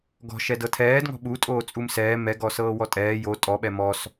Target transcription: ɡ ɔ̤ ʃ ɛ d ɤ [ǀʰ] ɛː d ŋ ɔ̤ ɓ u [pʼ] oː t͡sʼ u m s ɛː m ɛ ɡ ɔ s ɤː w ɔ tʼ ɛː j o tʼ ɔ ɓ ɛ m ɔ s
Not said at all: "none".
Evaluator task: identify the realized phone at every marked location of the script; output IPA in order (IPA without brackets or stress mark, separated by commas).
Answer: tʰ, tʼ